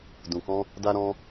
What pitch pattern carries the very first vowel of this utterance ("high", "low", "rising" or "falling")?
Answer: low